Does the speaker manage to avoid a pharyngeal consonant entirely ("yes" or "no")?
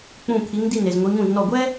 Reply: yes